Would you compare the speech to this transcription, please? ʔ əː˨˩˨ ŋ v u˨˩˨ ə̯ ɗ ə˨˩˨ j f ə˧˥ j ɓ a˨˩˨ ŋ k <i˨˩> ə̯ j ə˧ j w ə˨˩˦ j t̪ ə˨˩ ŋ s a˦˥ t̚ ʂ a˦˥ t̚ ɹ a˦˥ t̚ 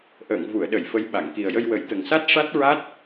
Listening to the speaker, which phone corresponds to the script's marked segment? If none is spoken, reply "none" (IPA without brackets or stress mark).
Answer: i˨˩